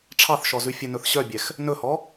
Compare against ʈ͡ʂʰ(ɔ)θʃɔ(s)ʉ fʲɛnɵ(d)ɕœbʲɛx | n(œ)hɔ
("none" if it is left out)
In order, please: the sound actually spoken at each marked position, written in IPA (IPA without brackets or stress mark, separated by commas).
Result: ɑ, z, θ, ɵ